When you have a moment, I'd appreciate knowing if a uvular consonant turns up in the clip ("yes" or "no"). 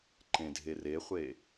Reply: yes